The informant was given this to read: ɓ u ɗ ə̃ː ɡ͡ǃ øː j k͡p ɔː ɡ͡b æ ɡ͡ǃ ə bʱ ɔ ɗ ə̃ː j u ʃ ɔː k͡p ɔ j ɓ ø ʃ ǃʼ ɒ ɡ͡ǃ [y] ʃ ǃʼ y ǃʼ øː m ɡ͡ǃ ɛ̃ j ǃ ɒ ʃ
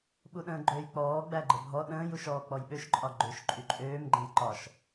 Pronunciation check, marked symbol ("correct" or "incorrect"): incorrect